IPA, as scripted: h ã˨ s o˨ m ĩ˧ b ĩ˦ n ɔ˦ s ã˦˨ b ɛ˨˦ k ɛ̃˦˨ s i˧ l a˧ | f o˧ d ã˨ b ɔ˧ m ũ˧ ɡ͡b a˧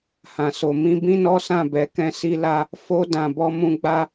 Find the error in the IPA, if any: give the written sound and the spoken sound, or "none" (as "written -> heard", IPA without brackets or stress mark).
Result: none